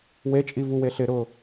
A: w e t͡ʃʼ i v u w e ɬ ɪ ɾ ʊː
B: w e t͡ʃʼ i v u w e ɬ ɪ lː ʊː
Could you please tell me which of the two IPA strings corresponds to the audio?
A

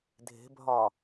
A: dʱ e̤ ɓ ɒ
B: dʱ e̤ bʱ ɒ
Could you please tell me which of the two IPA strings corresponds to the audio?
B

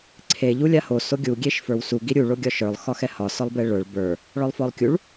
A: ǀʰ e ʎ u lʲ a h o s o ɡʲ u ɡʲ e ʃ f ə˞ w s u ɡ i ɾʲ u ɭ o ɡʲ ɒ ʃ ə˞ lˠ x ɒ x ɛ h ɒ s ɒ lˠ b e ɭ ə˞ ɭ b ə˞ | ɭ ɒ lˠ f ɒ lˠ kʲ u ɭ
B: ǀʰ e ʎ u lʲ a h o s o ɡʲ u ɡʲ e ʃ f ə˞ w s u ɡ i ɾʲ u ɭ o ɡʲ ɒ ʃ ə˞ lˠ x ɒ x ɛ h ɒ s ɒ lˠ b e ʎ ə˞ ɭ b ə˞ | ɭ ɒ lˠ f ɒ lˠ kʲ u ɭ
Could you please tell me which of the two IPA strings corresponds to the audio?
A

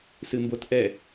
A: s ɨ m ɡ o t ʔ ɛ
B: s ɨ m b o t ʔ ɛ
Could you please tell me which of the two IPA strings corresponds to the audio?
B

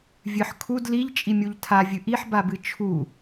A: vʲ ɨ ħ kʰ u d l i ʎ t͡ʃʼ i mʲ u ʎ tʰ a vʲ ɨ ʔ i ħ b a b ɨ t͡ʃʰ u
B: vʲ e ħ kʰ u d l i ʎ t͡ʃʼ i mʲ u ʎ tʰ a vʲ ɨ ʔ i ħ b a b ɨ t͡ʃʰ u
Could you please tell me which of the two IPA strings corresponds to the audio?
A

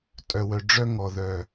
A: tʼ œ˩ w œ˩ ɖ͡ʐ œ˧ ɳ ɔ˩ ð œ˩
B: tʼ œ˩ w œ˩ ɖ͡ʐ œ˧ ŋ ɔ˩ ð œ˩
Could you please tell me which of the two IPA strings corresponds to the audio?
B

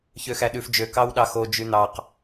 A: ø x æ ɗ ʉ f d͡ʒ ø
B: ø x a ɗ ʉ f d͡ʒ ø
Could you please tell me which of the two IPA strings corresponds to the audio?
A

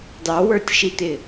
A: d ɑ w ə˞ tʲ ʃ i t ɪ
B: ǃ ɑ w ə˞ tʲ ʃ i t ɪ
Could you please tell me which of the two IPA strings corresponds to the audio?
A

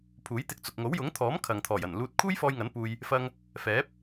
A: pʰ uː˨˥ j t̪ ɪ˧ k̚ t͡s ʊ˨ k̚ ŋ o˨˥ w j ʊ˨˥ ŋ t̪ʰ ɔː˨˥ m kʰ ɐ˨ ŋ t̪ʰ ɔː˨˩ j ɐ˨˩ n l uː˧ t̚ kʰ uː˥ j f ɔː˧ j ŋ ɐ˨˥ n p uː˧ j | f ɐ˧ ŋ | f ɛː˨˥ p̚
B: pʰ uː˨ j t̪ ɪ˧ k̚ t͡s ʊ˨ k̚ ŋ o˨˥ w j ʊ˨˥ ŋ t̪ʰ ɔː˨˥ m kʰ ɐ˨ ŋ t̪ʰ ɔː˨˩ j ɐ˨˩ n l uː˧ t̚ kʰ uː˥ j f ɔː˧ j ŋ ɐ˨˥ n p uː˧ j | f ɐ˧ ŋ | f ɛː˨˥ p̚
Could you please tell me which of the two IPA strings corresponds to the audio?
A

